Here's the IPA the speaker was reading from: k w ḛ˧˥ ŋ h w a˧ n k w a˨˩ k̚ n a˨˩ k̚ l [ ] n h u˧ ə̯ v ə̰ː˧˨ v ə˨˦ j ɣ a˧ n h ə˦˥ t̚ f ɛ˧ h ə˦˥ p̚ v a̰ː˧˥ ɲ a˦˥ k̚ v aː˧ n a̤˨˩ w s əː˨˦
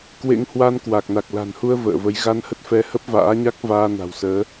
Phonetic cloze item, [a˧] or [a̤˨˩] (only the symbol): a̤˨˩